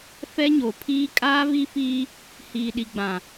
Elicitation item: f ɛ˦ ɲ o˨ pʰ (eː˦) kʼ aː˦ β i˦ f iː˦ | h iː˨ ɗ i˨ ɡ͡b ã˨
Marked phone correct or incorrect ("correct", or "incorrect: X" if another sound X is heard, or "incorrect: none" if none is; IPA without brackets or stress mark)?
incorrect: iː˦